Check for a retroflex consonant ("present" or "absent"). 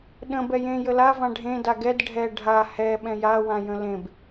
present